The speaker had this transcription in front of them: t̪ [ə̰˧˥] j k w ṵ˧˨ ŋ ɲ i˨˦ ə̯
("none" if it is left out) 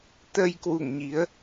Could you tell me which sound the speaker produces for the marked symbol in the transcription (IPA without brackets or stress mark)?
ə˧